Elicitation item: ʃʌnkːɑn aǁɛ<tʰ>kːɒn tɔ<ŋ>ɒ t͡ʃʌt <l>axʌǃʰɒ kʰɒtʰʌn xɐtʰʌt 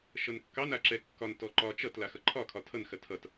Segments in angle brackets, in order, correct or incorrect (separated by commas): incorrect, incorrect, correct